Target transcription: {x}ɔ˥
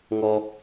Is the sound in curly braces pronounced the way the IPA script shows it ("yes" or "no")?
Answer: no